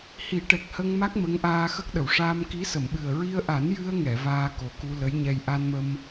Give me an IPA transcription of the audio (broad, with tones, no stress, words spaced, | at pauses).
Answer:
hi˨˩˦ʈɛ˨˩k̚hə˧ŋma˦˥k̚ mə˧˥ŋʔaː˧xə˦˥k̚ɗə˨˩˨w ʂaː˧m ki˧˥sə˨˩˨mɓɨ˨˩ə̯ ɹi˧ə̯ʔa˨˩˦n jɨ˧ə̯ŋɛ˨˩˨ vaː˧ko˨˩ku˧ lə˧˥jɲɛ˧j ʔa˧nmə˧m